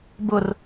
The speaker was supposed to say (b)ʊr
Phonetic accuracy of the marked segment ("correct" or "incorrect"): correct